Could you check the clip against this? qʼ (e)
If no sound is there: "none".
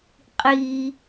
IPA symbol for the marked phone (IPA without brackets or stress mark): i